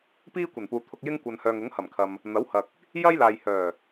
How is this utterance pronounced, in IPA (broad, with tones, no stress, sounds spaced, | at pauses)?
p iː˥ kʷ ɐ˨˩ n p uː˨ t̪ʰ ʊ˨ k̚ j ɪ˧ ŋ kʷ ɐ˨ n h œː˨ ŋ ʊ˨˥ ŋ h ɐ˨˩ m kʰ ɐ˨ m | n̪ ɐ˨˥ w h ɐ˨ k̚ | j ɐ˥ j l aː˨ j h œː˨˩